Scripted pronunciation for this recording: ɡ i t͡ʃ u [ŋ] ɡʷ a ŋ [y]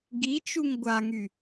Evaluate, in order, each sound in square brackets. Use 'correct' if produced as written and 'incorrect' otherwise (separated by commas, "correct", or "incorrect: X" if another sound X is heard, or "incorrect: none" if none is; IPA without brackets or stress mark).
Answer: correct, correct